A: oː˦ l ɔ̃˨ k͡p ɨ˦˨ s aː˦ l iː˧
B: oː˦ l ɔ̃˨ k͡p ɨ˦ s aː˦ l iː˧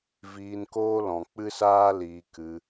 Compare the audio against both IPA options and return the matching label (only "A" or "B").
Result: B